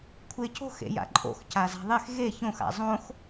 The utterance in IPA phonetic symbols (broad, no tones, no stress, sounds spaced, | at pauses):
kʷʰ e c o̤ x ḛ j a̰ ǃʼ o̰ x c a z a̤ ðˤ e x ɣ e ç õ x a̰ zˤ õ x